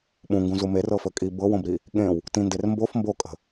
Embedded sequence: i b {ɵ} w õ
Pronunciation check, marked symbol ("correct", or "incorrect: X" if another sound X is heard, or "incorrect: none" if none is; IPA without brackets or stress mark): incorrect: ɤ